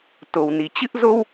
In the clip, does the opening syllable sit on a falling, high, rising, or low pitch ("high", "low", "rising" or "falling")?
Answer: low